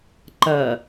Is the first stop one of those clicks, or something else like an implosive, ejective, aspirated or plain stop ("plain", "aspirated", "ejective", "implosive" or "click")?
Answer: click